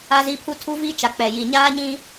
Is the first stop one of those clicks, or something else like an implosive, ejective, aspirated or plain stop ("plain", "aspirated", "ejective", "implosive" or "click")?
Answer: aspirated